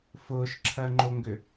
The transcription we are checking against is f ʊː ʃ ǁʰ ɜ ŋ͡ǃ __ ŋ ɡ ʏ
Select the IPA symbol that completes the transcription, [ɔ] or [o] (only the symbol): o